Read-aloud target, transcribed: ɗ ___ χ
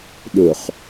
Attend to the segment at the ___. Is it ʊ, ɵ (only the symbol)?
ʊ